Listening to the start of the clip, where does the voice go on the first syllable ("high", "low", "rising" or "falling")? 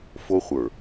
high